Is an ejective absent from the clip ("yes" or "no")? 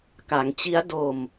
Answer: yes